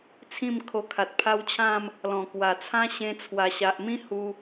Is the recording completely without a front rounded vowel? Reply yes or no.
yes